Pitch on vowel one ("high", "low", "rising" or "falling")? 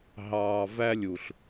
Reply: low